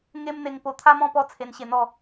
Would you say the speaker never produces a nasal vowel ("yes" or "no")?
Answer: no